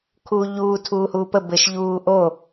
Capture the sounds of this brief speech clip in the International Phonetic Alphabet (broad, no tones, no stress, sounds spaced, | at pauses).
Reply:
kʰ uː ʎ uː tʰ uː h uː p ə b ɘ ʃ ʎ uː ʔ o